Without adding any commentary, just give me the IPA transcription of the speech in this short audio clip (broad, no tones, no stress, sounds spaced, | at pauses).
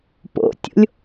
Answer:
p o̰ tʲ o̰ lʲ